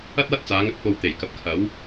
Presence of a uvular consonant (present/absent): absent